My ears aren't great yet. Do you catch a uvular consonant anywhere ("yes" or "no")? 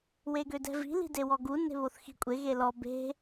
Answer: no